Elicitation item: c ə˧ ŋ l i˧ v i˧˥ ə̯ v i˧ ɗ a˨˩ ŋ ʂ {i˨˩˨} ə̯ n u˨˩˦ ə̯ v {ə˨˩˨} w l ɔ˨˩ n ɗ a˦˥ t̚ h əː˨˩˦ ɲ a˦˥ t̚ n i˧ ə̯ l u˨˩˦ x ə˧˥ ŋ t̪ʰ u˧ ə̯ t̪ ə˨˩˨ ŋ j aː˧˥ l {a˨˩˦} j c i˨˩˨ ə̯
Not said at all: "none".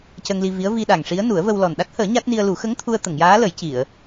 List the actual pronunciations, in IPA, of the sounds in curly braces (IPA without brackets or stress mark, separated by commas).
i˧˥, ə˧, ə˨˩˦